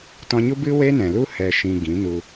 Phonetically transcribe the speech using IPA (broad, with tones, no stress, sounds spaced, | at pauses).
t ɔ̃˧ ɲ u˦ b ɨ˦ w e˦ n ɛ̃˨ l u˦ h ɛ˧ ʃ ĩ˧ ɡ ĩ˨˦ n u˧